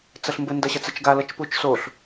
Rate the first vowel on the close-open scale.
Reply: open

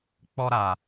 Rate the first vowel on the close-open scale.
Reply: mid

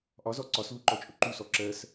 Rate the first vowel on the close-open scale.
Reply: open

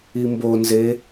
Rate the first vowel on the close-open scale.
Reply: close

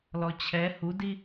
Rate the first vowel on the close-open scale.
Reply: mid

